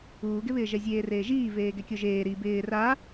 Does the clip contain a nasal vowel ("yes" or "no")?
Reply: no